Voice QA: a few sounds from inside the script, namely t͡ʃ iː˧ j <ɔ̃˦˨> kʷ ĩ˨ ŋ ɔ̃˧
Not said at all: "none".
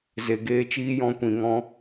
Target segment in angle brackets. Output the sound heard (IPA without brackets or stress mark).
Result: ɔ̃˧